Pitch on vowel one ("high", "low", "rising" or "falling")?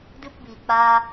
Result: high